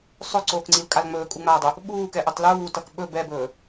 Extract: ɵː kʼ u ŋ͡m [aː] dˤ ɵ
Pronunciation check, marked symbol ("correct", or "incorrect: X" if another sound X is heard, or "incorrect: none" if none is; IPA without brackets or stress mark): correct